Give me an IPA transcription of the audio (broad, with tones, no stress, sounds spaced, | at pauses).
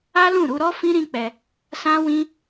a˦ l ũ˦˨ ɾ u˧ ɾ ɔ˦ f ĩ˦ ɾ ĩ˦ k͡p ɛ˧ | s ã˦ w ĩ˦